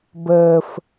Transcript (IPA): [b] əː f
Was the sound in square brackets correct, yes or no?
yes